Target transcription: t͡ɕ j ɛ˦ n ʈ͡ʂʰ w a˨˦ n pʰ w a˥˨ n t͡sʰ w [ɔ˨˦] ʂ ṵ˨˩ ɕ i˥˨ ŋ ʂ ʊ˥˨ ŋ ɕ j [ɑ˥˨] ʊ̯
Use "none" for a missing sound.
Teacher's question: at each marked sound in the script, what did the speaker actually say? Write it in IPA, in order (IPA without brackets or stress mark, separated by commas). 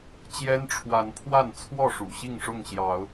ɔ˥˨, ɑ˨˦